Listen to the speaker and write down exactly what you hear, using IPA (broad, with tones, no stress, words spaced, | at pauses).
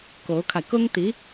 ko˧˥ʊ̯kʰa˧ɪ̯ kʊ˥ŋ t̪i˧˥